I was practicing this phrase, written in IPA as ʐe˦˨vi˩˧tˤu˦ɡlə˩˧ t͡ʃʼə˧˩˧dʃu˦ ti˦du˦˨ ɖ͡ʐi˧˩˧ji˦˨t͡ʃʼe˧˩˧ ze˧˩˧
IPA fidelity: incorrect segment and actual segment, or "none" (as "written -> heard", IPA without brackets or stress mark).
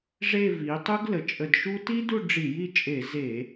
none